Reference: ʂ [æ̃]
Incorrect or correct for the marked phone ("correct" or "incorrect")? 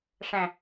correct